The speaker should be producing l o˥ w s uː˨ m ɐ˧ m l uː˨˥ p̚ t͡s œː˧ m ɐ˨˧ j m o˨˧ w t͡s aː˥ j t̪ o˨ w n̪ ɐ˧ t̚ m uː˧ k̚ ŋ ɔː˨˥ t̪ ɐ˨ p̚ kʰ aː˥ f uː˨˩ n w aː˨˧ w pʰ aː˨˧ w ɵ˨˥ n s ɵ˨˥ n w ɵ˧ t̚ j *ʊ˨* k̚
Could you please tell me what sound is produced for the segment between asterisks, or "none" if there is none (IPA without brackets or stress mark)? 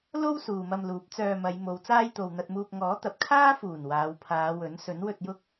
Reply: ʊ˥